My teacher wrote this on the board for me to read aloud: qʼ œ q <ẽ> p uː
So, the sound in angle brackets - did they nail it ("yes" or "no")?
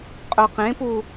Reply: yes